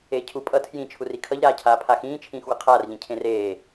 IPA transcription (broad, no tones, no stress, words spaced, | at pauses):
eːcʰu pʼʌ tʰjĩ t͡ʃʰurikʰʌʎ ɾaːcʰaːpʰaxĩː t͡ʃʰĩːxwʌqʰaːr ʎĩcʰẽreː